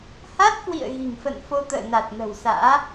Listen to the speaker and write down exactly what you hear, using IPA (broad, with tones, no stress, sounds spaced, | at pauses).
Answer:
h a˦˥ t̚ k w ḭ˧˨ ə̯ ɣ i̤˨˩ ŋ f ə̰˧˨ n f o˧ t̪ ə̰ː˧˨ n a˨˩ t̚ n ə̤˨˩ w s a̰ː˧˥